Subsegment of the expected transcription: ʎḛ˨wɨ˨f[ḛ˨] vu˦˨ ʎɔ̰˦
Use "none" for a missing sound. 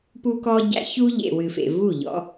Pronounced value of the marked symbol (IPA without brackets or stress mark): ḛ˨